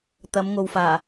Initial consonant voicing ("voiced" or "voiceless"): voiceless